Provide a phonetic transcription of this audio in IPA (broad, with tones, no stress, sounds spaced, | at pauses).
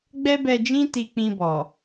ɡ͡b ɛ˦ b ɛ˧ d͡ʒ ĩ˦ t i˧ k͡p ĩ˧ b ɔ˨